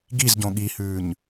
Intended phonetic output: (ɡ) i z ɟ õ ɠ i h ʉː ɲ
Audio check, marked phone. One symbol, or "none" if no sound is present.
ɡ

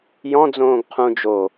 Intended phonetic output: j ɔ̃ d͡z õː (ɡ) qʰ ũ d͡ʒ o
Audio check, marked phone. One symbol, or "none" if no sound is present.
ɡ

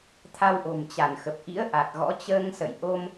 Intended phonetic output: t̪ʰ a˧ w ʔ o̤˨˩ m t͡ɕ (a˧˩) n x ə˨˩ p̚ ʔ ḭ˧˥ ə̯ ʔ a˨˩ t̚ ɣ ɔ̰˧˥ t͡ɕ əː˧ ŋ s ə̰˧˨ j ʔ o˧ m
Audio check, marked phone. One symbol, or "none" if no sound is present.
a˧˩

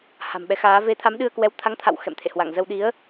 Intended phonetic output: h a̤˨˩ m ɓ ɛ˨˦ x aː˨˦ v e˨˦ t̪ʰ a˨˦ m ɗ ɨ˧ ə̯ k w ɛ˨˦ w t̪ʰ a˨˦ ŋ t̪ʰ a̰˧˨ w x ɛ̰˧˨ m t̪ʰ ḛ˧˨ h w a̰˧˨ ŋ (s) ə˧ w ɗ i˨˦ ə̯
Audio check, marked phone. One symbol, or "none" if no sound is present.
z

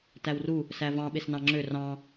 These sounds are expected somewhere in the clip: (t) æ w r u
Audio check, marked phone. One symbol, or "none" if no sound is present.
t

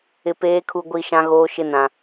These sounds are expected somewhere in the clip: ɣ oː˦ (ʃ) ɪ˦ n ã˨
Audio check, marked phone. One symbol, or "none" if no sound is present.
ʃ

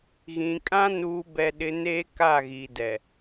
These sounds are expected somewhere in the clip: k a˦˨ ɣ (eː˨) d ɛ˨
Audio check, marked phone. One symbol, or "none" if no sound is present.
iː˨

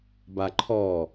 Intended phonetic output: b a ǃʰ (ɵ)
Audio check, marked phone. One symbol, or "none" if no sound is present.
ɔ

